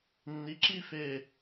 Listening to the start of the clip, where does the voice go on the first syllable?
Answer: rising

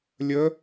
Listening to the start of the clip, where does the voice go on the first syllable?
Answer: rising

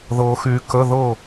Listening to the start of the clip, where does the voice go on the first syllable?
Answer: low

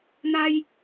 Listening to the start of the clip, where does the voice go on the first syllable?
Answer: high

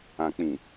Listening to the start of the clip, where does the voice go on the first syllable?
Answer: low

